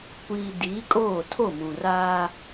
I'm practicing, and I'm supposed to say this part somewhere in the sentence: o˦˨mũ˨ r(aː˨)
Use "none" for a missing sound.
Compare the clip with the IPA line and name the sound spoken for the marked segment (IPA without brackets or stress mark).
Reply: aː˦